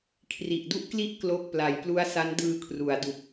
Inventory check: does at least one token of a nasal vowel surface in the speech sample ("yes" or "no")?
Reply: no